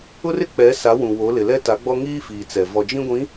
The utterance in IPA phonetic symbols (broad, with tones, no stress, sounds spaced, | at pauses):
ʊ˦ r ɪ˦ k͡p ɛ˨˦ s a˨˦ w ũ˨ w o˨˦ l ɪ˨ l ɛ˦ t a˨˦ ɡ͡b ɔ˦ ŋ iː˦ f iː˨ t͡s ɛ˨ v ɔ˨ d͡ʒ ĩ˦ ɡʷ ĩ˨˦